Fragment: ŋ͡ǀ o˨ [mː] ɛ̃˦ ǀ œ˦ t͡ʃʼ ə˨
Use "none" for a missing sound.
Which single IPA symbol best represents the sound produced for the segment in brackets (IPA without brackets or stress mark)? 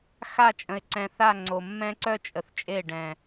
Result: mː